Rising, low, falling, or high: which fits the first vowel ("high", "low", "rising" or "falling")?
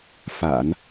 low